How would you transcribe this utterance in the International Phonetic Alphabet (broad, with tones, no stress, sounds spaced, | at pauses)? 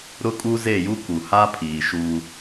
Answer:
ɾ ʊ˦ kʼ u˦ z e˦˨ j u˦ k u˨ h a˦ pʰ iː˨ ʃ u˦